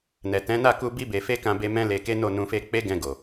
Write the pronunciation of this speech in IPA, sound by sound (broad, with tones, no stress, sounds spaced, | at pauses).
n ɛ˨ t ɛ̃˨˦ n a˦˨ k u˧ b i˧ b e˨ f e˧ k ã˧ b e˧ m ɛ̃˦ l e˧ k e˦ n o˦˨ n ũ˧ f e˧ k͡p e˦ ɡ ɛ̃˧ ɡ o˨